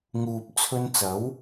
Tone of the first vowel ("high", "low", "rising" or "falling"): low